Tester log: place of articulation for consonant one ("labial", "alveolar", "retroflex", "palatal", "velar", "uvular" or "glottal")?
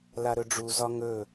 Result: alveolar